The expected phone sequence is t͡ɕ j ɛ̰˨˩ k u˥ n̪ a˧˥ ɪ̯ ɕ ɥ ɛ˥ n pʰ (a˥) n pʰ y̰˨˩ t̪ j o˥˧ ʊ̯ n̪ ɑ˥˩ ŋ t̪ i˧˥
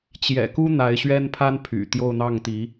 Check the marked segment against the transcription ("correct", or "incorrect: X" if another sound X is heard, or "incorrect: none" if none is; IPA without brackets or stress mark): correct